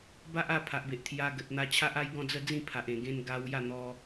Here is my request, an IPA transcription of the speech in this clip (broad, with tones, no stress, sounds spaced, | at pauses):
b a˦ ʔ a˥˧ pʰ a˨ ʔ b e˨ ʔ t̪ʰ j a˧ ɡ ə˨ t̚ n̪ a˧ t͡ɕʰ a˦ ʔ a˦ j ɡ ɔ̃˥˧ d͡z ə˥˧ d͡z ĩ˥˧ pʰ a˨ ʔ ẽ˨˩ ɡ ẽ˧ n ɡ a˧ w j a˥˧ n̪ ɔ˧